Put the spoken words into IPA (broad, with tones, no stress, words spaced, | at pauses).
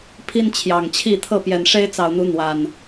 pʰi˦nt͡ɕʰjɑ˨˩ŋt͡ɕʰi˥˨ t̪ʰɤ˥˨pjɛ˨˩n ʂe˦ɪ̯t͡sɑ˨˩ʊ̯n̪u˨˦ n̪wa˨˩n